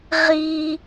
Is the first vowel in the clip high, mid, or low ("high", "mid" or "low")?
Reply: high